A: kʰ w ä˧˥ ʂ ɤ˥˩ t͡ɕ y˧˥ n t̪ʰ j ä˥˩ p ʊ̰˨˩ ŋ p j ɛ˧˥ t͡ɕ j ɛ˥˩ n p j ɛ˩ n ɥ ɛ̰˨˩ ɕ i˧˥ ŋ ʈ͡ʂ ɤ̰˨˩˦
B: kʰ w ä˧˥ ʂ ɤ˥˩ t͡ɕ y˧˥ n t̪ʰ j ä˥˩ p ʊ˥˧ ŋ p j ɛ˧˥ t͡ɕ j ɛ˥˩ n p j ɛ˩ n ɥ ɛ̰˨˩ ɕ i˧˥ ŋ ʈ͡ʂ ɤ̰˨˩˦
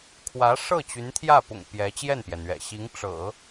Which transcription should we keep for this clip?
A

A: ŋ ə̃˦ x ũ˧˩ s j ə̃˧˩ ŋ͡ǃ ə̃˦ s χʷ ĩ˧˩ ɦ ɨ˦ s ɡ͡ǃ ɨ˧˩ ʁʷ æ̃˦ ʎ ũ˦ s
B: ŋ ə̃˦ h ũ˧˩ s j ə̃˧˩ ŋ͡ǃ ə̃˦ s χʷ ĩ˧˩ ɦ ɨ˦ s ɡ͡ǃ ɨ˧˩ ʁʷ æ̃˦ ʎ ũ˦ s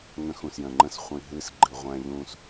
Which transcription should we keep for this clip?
A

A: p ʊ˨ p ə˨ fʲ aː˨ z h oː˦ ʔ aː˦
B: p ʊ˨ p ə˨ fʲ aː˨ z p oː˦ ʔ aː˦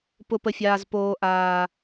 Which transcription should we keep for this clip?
B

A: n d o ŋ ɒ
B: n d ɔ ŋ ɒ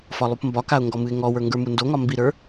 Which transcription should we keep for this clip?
A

